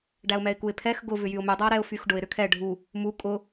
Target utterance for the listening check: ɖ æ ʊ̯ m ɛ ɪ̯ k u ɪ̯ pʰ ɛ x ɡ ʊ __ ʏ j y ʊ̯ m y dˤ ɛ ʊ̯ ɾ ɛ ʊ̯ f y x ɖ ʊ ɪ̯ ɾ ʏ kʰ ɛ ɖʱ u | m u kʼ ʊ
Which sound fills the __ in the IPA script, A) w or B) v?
B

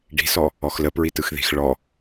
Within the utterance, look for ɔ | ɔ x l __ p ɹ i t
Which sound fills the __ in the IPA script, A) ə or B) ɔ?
A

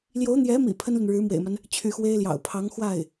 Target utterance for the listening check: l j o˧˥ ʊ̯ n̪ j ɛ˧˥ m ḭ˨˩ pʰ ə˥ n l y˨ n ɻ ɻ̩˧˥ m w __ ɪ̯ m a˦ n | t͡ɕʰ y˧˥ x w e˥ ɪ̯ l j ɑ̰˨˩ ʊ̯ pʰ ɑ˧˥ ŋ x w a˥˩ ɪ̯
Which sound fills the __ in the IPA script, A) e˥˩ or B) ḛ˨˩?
B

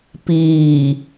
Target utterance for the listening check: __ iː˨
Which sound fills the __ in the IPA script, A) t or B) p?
B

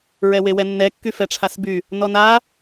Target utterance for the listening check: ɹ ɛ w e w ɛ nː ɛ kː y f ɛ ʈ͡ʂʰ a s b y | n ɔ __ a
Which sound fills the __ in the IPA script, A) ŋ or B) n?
B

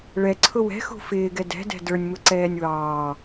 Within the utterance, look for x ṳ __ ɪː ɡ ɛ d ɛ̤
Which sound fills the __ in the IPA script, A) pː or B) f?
B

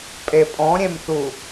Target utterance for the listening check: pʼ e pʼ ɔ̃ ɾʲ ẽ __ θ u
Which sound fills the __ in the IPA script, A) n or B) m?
B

